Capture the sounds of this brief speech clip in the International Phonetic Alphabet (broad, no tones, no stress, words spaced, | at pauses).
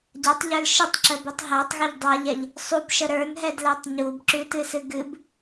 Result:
ɟatˤʎə˞l ʃətˤǁəbɨtˤ ɦætˤɣəʎ dˤaʎɛʎ | sˤubʃə ɾə˞nɦɛdlætˤ ɲubǁʉtɨsɨ ɡɨb